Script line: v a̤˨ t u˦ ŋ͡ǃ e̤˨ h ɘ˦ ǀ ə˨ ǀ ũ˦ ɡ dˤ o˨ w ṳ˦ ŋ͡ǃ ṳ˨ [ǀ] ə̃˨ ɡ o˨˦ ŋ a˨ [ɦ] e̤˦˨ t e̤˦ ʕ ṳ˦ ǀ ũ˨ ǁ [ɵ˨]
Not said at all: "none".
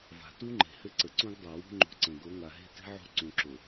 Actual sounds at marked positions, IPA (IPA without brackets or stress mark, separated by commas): ǀ, ɦ, o˨